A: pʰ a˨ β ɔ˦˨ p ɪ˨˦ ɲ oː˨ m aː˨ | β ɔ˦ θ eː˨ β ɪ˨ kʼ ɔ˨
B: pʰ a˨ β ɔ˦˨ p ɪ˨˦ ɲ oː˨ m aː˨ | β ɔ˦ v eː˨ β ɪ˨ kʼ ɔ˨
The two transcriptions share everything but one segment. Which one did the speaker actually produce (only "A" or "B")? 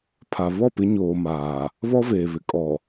B